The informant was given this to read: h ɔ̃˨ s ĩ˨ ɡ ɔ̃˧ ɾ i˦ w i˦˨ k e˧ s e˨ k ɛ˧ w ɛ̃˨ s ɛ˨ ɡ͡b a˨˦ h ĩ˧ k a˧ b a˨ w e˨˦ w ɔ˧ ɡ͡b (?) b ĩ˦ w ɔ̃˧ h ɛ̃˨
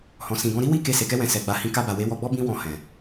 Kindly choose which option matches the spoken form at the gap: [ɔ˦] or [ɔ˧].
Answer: ɔ˦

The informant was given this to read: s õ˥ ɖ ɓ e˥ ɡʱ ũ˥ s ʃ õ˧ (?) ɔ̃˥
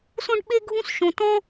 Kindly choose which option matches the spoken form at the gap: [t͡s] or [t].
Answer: t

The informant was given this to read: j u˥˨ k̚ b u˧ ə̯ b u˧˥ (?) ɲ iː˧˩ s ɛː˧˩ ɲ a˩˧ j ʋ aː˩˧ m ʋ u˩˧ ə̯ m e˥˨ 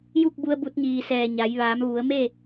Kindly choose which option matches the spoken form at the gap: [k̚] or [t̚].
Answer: t̚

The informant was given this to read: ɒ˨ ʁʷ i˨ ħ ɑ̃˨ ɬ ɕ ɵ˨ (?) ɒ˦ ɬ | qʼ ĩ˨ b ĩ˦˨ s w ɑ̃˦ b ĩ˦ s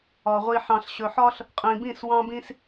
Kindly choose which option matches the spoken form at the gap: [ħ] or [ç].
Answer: ħ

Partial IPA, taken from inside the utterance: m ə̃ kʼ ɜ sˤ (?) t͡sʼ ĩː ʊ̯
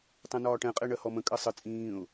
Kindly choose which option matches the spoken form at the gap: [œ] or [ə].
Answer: ə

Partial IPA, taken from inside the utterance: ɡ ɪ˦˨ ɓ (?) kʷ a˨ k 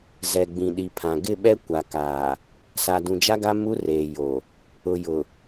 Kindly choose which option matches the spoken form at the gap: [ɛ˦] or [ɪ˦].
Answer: ɛ˦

